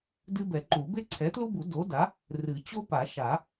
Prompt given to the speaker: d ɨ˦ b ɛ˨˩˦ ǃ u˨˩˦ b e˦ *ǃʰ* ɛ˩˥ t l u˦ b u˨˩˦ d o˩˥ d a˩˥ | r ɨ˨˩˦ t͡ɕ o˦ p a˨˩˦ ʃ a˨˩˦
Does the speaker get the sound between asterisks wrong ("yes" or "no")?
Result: yes